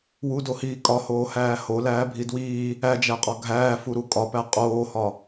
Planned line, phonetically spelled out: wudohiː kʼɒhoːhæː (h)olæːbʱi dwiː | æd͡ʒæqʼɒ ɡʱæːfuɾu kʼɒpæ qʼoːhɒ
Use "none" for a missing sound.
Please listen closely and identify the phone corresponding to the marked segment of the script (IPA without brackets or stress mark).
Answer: h